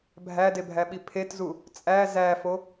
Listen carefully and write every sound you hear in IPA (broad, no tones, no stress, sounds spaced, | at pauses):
bʱ æ d e bʱ æ ɓ i pʰ e t z u | t͡sʼ æ z æ f o